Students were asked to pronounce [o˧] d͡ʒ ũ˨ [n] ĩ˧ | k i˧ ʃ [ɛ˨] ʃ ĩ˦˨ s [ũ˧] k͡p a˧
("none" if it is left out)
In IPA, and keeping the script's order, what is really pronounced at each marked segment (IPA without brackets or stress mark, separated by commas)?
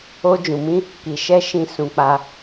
o˧, m, ɛ˦, ũ˧